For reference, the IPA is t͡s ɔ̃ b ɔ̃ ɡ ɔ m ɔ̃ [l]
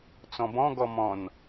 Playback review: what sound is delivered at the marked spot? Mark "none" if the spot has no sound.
n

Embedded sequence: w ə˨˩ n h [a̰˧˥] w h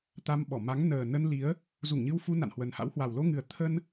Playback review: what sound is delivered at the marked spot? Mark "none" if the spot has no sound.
a̰˧˥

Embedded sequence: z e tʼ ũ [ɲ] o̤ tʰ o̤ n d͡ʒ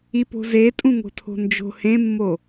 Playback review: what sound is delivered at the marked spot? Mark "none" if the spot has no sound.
ŋ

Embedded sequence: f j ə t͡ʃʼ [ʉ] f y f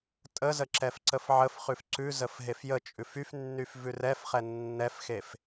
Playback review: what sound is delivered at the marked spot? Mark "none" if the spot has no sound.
ʉ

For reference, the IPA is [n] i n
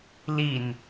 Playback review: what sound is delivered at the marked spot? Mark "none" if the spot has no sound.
l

